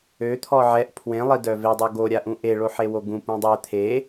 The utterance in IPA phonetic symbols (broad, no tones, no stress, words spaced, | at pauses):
øt̪ʰɔ ʕɛʔ pʰwẽlˠidœ vedˤo ɡoɾʲaʔũ ʔeɭoħewo ɡũpũ dˤɛ t̪ʰe